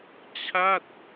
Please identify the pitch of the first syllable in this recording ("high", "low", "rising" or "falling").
falling